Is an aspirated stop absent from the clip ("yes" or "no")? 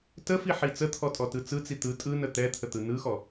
no